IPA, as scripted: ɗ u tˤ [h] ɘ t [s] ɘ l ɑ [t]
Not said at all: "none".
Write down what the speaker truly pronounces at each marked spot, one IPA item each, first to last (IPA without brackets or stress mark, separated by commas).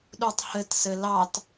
h, s, t